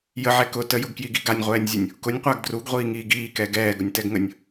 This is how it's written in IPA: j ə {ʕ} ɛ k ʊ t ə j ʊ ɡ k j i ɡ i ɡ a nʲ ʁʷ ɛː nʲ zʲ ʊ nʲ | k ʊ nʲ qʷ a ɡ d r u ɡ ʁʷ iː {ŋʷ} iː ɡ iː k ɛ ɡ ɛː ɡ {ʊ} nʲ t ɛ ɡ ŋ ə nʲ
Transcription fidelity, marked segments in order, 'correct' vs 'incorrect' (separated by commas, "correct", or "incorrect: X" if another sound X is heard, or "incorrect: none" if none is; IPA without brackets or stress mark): correct, incorrect: ŋ, correct